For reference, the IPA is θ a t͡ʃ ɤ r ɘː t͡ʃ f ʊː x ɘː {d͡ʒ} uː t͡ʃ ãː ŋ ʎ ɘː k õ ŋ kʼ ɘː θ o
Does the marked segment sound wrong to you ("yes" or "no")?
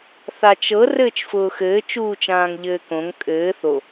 yes